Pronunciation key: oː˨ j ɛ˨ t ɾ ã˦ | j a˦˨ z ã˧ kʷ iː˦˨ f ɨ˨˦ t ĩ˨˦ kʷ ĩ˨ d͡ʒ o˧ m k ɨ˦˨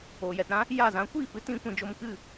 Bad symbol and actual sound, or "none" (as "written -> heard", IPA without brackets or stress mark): none